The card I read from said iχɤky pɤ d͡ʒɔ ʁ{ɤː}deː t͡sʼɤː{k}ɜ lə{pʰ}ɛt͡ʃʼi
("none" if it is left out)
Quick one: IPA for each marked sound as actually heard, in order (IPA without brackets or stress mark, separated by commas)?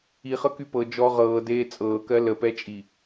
ɤː, k, p